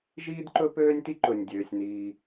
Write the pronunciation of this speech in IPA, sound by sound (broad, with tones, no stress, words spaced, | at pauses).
ʒiː˥dǃɵ˥pøː˥nʲti˥ ǃɵ˩nʲdʲøː˩sʲniː˩